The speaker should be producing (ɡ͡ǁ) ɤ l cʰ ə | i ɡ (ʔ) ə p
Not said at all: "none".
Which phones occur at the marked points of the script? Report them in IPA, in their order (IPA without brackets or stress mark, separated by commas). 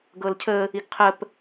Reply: ɡ, qʰ